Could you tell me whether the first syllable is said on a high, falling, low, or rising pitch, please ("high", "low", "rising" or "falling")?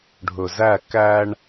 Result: low